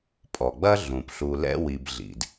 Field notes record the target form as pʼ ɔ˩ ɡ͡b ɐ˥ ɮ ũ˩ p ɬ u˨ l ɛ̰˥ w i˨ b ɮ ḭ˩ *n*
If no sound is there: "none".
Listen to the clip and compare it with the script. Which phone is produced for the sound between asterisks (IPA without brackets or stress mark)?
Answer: d